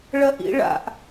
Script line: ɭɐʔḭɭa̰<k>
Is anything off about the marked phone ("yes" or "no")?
yes